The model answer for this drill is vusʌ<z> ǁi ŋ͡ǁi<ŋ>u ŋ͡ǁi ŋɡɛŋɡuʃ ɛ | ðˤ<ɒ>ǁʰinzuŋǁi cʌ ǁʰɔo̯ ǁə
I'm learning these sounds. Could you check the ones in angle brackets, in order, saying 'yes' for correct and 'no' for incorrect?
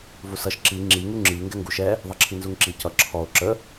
no, yes, no

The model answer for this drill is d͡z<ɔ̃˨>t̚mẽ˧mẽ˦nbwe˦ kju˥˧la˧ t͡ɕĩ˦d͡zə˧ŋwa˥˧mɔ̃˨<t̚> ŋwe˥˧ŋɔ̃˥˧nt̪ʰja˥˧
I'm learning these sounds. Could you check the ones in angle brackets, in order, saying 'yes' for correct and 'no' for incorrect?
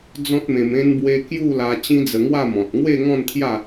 no, yes

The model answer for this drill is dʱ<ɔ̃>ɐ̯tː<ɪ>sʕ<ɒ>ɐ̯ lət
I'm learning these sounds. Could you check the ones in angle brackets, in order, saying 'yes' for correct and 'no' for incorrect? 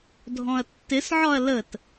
yes, yes, yes

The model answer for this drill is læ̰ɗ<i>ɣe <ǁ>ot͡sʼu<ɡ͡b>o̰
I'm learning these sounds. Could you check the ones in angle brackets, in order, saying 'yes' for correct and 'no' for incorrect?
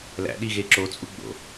yes, yes, yes

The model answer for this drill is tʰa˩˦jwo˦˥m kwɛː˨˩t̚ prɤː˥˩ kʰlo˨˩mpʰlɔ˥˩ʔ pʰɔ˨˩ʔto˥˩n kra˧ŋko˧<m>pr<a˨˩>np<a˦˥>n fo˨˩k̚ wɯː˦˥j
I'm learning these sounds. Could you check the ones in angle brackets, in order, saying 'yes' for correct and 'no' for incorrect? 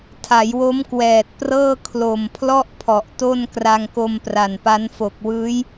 yes, yes, yes

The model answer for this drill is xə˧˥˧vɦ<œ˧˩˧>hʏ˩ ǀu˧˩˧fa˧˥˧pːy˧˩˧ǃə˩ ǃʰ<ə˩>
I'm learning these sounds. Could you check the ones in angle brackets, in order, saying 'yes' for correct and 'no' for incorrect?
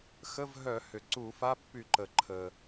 yes, yes

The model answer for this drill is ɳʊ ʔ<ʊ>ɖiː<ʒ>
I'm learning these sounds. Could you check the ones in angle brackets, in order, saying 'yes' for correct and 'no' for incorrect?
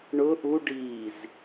no, no

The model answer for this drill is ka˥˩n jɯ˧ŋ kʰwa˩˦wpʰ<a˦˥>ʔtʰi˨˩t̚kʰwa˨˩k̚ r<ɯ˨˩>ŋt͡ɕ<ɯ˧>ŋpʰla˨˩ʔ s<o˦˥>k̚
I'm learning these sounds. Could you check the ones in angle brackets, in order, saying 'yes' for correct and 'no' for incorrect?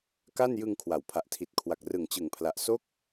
no, yes, no, yes

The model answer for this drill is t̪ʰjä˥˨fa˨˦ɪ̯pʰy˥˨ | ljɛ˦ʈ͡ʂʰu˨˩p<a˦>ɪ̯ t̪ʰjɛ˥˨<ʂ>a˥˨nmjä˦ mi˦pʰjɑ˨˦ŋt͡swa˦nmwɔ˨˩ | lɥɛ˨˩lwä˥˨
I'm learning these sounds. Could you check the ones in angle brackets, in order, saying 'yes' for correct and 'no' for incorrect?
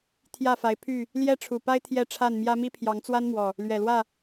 yes, no

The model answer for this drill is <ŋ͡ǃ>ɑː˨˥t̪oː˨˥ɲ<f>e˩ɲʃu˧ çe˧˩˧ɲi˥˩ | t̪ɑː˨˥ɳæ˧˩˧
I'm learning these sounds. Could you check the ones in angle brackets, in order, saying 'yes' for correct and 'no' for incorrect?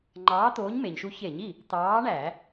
yes, no

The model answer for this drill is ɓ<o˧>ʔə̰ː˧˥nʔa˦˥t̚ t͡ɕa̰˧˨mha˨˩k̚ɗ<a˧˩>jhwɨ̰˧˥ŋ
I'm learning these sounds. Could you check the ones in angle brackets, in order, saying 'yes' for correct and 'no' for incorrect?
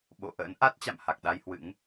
no, no

